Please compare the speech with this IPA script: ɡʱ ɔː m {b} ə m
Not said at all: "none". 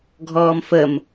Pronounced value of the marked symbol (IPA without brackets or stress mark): f